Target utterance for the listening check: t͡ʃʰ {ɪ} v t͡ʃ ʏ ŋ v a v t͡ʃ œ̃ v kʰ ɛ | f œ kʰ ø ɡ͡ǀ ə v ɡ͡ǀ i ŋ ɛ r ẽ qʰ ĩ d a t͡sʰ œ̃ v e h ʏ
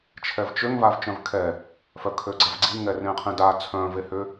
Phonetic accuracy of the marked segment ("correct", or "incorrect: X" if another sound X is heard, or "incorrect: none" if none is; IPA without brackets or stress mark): incorrect: ɛ